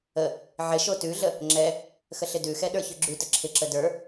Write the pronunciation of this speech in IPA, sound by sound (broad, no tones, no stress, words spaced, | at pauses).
ə | ʕɪ ʃotʉɮə | ŋ͡ǁɛ | xəɬɪdʉxɛ ɗə˞çʉɡ͡ǁʉtə ǁʰɪǁə də˞